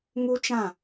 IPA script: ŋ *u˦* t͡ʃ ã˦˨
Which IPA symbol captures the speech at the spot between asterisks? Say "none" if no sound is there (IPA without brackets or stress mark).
u˦